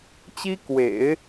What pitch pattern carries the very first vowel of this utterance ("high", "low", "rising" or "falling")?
high